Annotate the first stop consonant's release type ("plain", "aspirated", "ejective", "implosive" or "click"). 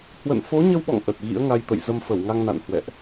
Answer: implosive